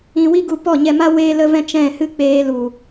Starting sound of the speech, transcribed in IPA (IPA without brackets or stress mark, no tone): ĩ